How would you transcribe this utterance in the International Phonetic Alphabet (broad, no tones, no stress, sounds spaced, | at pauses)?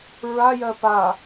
ɹ a j ɜ p a